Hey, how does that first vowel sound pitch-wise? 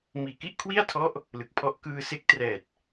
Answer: low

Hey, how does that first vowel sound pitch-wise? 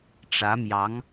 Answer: rising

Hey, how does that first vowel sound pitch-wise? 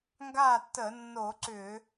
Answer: falling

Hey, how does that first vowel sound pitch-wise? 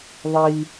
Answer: high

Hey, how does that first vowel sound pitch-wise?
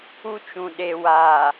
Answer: high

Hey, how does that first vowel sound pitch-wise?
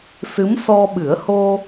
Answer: rising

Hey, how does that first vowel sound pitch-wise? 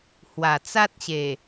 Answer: low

